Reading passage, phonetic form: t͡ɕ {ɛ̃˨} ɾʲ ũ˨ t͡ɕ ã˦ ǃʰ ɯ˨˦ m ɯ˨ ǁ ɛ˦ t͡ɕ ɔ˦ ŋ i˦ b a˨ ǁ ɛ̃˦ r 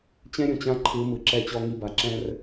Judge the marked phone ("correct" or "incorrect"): incorrect